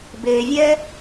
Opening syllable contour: low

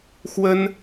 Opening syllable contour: high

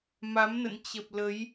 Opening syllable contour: rising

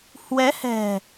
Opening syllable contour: rising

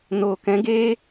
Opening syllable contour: low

